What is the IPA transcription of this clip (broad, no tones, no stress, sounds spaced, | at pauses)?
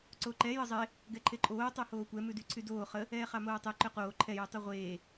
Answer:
ǀ o ǃ ɛ j ə zˤ e | ɡ ɛ ǃʰ e ǃʼ oː tˤ o h oː kʷ ɛ m ʉ d y ǀʰ y d oː χ ə | ɛː χ ɑ m oː tˤ e ǃ ø q oː ǃʰ ɛ j y tˤ o ʁʷ eː